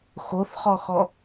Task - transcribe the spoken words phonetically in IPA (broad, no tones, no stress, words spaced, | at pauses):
xoθχɔxɔ